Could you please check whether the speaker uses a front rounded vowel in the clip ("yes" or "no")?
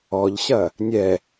no